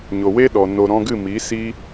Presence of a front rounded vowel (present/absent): absent